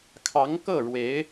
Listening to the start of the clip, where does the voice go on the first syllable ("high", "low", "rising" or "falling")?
rising